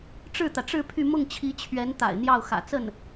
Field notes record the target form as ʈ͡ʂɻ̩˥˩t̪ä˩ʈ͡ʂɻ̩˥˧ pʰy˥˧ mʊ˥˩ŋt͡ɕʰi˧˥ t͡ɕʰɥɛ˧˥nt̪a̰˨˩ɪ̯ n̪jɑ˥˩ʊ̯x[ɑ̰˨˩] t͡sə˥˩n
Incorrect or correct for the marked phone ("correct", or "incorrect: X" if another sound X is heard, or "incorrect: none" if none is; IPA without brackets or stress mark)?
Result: incorrect: ä̰˨˩